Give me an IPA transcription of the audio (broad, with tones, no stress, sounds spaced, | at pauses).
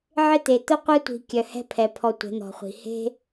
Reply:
ʕ ɪ˦ t̪ e˨ t̪ ʊ˦ qʷ ɛ˦ tʷ i̤˨ kʲ œ˨ h ɛ̤˦ pʰ ɛ˨ pʰ ɔ˧ tʷ ɛ̤˨˦ n̪ ɔ̤˨ χʷ i̤˨ h e̤˦